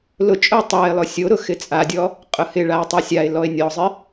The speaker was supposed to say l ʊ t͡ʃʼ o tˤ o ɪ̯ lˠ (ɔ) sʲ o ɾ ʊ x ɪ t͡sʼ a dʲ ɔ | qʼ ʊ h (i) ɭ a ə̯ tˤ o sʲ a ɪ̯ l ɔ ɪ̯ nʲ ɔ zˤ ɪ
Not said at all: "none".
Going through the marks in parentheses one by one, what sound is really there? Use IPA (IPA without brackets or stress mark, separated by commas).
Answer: ʊ, ɪ